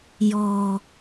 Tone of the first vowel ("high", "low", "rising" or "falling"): low